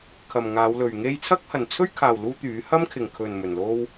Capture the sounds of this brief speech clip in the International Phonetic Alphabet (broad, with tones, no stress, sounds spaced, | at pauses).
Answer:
kʰ ɐ˨ m ŋ aː˨˧ w l ɵ˨ ɥ ŋ e˥ j t͡sʰ ɐ˥ k̚ h ɐ˨ n t͡sʰ ɵ˥ ɥ kʰ aː˨ w l uː˥ t̪ yː˨˥ h ɐ˥ m kʰ ɪ˨ ŋ kʰ ɵ˨ n m ɵ˨ n l o˥ w